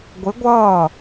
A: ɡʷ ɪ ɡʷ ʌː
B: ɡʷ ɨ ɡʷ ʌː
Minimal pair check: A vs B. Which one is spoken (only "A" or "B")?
A